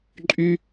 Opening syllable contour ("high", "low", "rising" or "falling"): high